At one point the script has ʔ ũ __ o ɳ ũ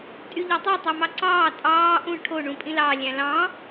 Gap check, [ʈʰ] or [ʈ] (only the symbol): ʈʰ